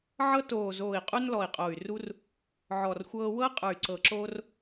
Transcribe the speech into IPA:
ʕɤ˦ toː˨˩ zoː˨˩i̯qʼu˦n lɔ˨˩i̯qʼo˨˩y̯ ru˦r | ʕɔ˨˩rxʷɤː˦ wɤ˦ qʼə˞˨˩y̯ǀɤ˨˩ǁoː˦r

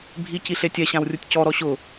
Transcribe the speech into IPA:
bʱi ciɬetʲɛ ɕãwrʲutʲcɔ ɾɔɕʊ

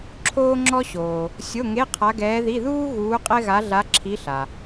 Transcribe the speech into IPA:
ǁʰoː˥ŋ͡ǁɔ˥ɕoː˨ | sʲo˧˥˧ŋe˧˥˧ qʰa˧˥ɡɛː˧˥ði˧˥˧ ðuː˥ ɣuː˧˥qʼɛ˥ɣa˧˥ ɮa˧˥ ǁʰi˧˥ɬa˨

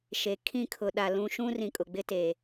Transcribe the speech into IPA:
ʃe˨ kʰĩ˦kʰʊ˨ɗa˨lũ˦ ʃũ˦rĩ˨kʼʊ˨ ɡ͡bɪ˦te˨

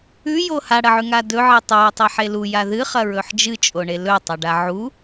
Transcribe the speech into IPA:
ʉjo haɽɐʕʉŋa dɵʕi tˤʉə̯tˤiħe luja ðɨχɐɹɵħ d͡ʒɨt͡ʃʼoɳe lɵtˤɐɖa ʕu

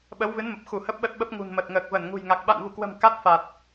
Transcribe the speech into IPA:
ɓə˨˦wvɨ˨˦nmə˨˩p̚xu˧˩ hə˦˥p̚ɓə˦˥t̚ɓə˦˥p̚ ŋṳ˨˩nmə˨˩t̚ŋəː˨˩k̚ və˧˩nŋṳ˨˩jŋa˨˩k̚ ɓa̰˧˨nvu˧˩kwə̤˨˩m ka˦˥t̚fa˨˩t̚

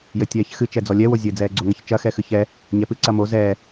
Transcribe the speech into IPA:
jɘtʲɛːçxɨ t͡ʃɛd͡zɔlʲɛ wozʲɘ d͡zɛːɡ͡ǀoŋɐçt͡ʃɐ xɛxɨçɛ | ɲɛpɨ ǀɐmo zɛː

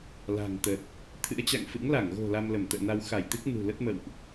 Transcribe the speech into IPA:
la̤˨˩ŋt̪ə˨˩t̚ | t̪ʰɨ̰˧˥ə̯t͡ɕa̰˧˨ŋfɨ̰˧˥ŋ la˧˩ŋɣo̤˨˩ la˧mlə˧˩mt̪ə̰ː˧˨na˧w xa˧˩jt̪ɨ˦˥k̚ nṳ˨˩lə˦˥t̚mə̰˧˨wʔ

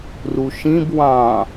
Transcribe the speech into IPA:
ruʃĩb wɑ̃

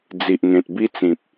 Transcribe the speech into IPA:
d͡zi˨ʔŋẽ˨t̚bi˦t͡sĩ˨p̚

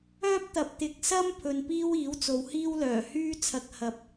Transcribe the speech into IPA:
œː˥p̚t̪ɐ˨p̚ t̪ɪ˨k̚sɐ˥m pʰɵ˧n piː˥wiː˨˥wt͡so˨˧whiː˥w lœː˨˩hyː˥t͡sʰɐ˧k̚ hɐ˨p̚

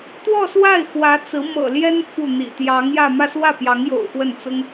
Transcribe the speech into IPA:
t̪wɔ˥˧swa˥˩ɪ̯ xwä˧˥t͡sɹ̩˧˥ mɤ̰˨˩ ljɛ˥n fu˥˩n̪ḭ˨˩ t̪jɑ˧˥ŋjä˥˧ mä˥˧swä˥˩pjɑ˧˥ŋjo̰˨˩ʊ̯ xwə˥˩nt͡sʊ˥ŋ

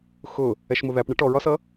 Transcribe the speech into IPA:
xʊ | ɛʃmʊðæpɳɪ ʈɔɹɒsʌ

